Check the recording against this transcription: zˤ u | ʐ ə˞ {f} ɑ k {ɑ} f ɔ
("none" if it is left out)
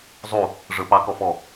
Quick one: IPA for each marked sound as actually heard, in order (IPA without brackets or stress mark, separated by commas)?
p, ɔ